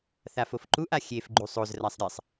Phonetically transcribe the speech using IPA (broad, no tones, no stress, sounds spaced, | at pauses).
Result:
θ a f o f ǃ u ʔ a xʲ e f ɡ͡ǃ u sˤ o z r a sˤ ɾʲ ɛ sˤ